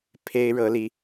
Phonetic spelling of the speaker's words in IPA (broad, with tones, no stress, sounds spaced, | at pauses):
pʰ e˥ ɪ̯ ɻ ɤ˥ l i˥